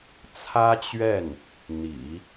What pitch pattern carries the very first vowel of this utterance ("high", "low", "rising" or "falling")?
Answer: high